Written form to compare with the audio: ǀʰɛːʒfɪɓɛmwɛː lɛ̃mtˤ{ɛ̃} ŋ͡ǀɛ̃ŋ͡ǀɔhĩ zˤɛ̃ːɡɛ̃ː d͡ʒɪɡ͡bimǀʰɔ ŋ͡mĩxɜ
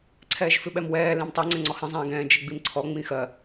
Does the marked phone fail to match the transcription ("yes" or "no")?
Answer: yes